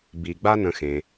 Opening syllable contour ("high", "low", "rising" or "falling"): low